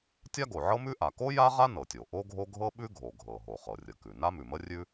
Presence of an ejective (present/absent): absent